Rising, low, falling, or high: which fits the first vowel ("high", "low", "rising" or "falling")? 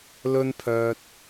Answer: high